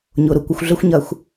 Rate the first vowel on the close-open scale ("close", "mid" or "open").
close